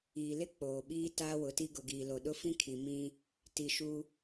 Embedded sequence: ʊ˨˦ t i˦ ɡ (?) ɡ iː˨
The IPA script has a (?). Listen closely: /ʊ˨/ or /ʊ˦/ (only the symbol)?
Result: ʊ˨